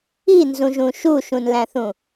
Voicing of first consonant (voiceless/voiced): voiced